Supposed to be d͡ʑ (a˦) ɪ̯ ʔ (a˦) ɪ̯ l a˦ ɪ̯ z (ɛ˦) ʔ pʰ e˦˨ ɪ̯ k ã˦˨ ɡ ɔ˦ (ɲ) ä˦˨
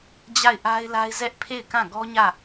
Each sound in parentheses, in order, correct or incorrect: incorrect, correct, correct, correct

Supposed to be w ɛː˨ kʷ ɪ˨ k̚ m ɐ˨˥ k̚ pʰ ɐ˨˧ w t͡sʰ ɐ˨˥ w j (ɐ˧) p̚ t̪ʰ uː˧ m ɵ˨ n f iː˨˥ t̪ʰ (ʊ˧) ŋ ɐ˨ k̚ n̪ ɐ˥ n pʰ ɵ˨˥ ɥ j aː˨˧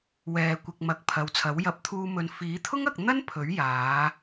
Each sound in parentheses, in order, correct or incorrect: incorrect, incorrect

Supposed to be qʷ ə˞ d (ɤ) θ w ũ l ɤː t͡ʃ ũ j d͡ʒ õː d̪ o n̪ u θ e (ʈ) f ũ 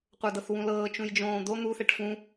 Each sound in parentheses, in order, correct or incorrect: correct, correct

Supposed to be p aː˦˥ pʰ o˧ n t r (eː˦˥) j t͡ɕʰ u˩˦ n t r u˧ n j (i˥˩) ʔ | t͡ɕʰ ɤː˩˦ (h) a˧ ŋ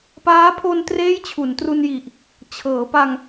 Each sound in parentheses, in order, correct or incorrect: correct, incorrect, incorrect

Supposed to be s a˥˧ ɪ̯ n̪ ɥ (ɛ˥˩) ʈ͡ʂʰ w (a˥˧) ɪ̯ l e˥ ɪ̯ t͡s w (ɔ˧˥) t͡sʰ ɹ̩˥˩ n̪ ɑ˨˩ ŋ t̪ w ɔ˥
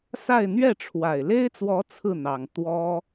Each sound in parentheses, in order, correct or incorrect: correct, incorrect, correct

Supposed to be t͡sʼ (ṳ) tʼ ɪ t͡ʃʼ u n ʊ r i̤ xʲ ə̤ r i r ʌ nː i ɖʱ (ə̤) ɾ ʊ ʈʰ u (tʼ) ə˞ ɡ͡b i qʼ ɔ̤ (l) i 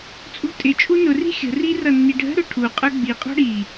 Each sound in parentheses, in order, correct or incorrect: correct, correct, incorrect, incorrect

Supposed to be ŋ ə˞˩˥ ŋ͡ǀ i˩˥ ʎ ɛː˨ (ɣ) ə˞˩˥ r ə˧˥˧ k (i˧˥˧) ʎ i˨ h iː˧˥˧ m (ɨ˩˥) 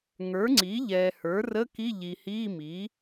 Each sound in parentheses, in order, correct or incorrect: incorrect, correct, incorrect

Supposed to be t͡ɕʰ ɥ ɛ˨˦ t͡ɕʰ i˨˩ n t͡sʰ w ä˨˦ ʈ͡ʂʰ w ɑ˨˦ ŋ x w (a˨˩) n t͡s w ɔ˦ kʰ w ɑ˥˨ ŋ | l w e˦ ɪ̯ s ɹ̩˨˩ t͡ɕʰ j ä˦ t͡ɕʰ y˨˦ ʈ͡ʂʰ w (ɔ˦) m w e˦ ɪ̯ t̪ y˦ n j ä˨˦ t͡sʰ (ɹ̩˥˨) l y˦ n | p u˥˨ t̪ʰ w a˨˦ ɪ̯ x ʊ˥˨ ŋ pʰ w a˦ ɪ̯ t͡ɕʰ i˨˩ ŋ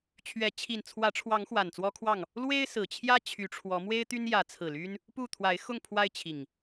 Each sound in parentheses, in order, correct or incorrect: correct, incorrect, incorrect

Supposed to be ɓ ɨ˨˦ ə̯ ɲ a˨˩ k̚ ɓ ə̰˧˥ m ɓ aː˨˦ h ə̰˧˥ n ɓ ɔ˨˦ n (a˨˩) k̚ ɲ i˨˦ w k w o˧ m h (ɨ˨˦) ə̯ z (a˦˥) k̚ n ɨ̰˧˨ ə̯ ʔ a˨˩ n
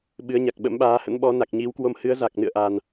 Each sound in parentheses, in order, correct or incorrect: correct, correct, incorrect

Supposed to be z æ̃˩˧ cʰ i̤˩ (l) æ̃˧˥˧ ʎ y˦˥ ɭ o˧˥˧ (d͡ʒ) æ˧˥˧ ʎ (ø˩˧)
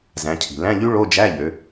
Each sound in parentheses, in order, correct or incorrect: correct, correct, correct

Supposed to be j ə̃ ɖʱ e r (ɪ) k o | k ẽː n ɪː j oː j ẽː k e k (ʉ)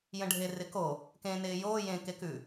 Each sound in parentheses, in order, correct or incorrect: correct, correct

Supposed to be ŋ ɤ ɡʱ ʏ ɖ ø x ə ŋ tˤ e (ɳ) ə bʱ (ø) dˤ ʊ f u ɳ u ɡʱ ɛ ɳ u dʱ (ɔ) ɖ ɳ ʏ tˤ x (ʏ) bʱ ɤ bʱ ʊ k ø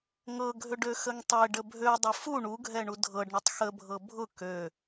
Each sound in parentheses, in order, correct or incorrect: incorrect, correct, incorrect, incorrect

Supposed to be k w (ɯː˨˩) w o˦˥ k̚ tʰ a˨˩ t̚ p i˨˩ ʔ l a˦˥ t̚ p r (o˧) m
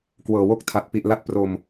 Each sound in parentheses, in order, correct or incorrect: incorrect, correct

